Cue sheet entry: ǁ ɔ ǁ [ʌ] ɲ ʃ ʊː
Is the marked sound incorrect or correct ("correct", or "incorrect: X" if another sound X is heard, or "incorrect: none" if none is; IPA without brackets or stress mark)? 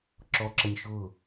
correct